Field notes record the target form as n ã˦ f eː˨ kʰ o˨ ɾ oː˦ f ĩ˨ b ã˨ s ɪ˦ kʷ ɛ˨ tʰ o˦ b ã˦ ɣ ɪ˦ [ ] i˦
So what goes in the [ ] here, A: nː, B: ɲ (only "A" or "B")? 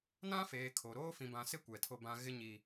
B